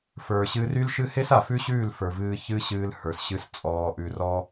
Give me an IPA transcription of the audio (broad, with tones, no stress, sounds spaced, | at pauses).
f ə˞˨ ɕ ɨ˧ r y˦ l ʃ ɨ˦ h e˦ s a˨ f ʉ˦ ɕ ʉː˦˨ l f ə˞˨ v ɨː˧ ç ɨ˦ ɕ ɨː˧ l h ə˞˨ s ɕ ɨ˧ s t͡sʼ ɔː˧ ʔ ʉ˧ r ɔ˦